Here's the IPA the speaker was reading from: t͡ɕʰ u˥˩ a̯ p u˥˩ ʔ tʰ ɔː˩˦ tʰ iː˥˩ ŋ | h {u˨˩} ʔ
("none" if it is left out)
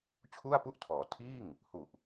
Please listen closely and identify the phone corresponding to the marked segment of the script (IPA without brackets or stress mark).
u˨˩